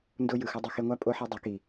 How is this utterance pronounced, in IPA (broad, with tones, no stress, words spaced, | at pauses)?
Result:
ndo˦jɯ˨xʌ˦ dˤʌ˧xe˧ŋʷa˦ pʼo˦ħɛ˦dˤɯ˨˦ki˨